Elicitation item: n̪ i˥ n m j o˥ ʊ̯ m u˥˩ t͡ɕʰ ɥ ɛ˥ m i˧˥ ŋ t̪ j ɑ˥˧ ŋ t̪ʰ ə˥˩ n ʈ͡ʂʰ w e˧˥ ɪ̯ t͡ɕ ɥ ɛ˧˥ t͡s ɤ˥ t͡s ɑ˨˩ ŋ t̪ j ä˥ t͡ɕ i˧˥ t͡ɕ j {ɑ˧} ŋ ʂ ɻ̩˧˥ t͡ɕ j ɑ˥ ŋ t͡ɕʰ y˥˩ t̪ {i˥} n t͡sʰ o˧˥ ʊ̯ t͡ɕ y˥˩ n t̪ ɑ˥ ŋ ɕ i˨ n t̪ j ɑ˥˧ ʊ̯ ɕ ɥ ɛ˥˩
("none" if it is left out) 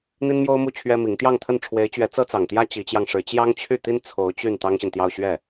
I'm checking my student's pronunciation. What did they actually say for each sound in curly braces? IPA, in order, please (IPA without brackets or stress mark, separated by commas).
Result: ɑ˧, i˥